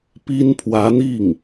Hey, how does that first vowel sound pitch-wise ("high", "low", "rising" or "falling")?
high